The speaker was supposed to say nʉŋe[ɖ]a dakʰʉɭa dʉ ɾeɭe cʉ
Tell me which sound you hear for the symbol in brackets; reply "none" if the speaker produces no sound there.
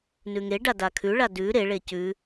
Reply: ɖ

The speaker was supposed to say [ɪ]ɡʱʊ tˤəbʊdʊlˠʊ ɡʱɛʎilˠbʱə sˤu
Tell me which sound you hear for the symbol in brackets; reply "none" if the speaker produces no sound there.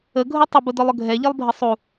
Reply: ə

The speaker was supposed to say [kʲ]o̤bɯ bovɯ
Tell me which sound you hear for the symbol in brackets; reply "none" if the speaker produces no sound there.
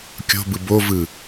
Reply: kʲ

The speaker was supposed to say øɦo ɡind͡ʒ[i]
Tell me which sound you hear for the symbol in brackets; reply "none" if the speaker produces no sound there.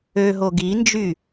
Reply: y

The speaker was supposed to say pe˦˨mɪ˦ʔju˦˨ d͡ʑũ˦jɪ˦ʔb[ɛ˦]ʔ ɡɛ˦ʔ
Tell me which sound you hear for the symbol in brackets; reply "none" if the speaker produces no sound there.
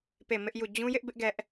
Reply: ɪ˦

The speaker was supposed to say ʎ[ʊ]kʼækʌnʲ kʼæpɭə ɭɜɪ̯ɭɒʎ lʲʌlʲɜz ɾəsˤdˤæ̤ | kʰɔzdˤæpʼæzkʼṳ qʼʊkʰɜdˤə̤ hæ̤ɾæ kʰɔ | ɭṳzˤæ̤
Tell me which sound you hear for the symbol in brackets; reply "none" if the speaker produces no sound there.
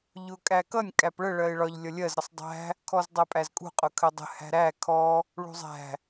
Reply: ʊ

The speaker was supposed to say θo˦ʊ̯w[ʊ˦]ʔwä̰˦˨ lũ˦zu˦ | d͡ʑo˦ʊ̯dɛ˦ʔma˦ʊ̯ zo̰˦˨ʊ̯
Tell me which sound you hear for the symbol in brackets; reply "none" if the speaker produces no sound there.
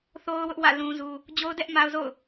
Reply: ʊ˦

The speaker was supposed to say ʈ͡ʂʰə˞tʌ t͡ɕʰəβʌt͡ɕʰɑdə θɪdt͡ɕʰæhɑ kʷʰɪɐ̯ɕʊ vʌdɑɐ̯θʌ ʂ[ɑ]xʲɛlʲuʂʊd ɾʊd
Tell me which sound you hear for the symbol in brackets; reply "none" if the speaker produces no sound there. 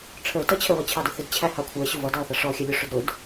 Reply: ɔ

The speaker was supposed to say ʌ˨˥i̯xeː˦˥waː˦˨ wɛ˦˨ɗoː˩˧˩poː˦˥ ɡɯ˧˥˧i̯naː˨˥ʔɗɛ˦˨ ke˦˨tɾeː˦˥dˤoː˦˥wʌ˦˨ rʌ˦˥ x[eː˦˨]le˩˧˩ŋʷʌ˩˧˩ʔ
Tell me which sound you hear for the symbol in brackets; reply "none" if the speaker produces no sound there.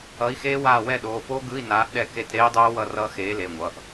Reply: eː˨˥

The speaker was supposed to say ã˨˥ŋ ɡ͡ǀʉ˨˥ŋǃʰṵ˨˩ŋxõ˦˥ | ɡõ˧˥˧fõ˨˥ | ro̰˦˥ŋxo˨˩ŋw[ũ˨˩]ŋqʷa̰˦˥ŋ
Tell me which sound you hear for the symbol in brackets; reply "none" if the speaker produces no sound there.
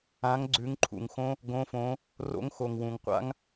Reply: ũ˨˩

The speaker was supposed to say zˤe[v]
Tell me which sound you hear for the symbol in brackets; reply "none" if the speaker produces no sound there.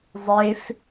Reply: f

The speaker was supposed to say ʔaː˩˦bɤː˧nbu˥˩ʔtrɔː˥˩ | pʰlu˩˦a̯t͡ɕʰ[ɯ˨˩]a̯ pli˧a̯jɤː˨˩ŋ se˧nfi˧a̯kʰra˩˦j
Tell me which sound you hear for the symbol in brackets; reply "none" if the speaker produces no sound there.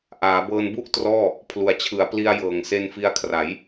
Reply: ɯ˩˦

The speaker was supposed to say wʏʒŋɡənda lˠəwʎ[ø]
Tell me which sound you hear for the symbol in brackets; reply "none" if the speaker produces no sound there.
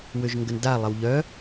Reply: œ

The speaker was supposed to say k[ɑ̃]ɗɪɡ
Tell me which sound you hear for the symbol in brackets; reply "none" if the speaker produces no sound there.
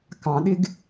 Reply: ɑ̃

